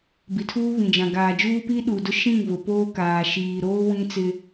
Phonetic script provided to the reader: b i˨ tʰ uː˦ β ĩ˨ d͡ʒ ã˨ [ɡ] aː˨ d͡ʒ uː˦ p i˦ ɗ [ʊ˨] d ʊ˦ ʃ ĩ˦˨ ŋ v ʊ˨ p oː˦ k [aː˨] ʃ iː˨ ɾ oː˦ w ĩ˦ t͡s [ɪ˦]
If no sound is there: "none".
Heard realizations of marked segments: ɡ, u˨, aː˨, ɪ˦

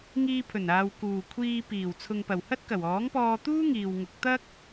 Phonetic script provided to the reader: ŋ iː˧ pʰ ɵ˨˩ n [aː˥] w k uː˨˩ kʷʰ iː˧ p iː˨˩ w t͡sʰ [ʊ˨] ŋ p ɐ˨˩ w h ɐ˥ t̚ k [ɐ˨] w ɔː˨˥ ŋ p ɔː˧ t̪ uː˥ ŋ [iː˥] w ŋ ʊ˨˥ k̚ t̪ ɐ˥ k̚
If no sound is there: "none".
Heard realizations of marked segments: aː˨, ʊ˨, ɐ˨˩, iː˨

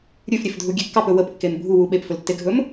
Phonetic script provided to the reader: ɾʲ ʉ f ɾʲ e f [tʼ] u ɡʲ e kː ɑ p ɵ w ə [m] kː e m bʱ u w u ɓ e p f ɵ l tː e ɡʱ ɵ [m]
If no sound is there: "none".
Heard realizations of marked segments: dʱ, p, m

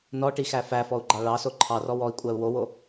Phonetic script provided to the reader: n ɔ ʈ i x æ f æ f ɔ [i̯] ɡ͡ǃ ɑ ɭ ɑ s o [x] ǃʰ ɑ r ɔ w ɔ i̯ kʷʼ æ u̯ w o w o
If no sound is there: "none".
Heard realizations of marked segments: u̯, none

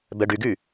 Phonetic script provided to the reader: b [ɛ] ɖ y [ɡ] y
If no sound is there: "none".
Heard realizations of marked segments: ɛ, ɡ

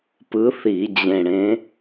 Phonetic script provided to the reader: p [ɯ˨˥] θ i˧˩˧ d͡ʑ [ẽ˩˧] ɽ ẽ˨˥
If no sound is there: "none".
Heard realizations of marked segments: ɯ˨˥, ẽ˨˩

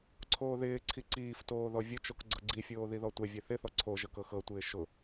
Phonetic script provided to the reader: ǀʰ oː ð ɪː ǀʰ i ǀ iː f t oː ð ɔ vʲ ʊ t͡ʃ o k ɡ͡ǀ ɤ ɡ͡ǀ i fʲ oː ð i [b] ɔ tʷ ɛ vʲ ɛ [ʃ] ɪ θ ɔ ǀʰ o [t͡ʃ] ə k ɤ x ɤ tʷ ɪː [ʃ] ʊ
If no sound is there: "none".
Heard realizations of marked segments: ð, θ, ʒ, ʃ

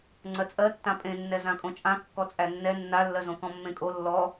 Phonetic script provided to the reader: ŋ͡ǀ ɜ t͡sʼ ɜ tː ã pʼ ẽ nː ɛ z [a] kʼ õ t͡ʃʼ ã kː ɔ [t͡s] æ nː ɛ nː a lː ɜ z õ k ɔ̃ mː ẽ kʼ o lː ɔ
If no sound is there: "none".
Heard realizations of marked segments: ã, t͡sʼ

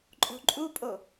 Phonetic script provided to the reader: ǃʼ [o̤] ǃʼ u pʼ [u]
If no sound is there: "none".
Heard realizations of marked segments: o̤, o

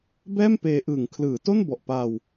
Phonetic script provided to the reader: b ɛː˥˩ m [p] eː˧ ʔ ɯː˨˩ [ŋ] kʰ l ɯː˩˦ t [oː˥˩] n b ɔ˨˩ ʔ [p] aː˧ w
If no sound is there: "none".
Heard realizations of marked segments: p, ŋ, o˥˩, p

